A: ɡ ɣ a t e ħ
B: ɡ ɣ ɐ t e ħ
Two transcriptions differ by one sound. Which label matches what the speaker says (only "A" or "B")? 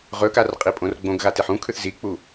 A